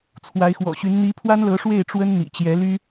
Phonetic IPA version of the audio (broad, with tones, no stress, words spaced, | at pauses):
t͡sʰwa˧˥ɪ̯xwɔ̰˨˩ɕy˧˥n n̪i˧˥pʰwa˥nlɤ˧˥ ʂwe˥˩ɪ̯ʈ͡ʂwə˥n n̪ḭ˨˩t͡ɕjɛ˧˥ly˥